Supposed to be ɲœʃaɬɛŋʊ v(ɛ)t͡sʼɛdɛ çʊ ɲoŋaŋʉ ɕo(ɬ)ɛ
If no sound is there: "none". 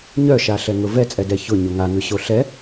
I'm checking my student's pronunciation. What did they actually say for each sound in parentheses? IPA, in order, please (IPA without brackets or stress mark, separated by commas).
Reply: ɛ, ɬ